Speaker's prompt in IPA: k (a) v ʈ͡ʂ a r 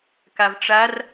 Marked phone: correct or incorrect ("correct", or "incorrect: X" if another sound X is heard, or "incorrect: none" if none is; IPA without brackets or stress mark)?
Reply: correct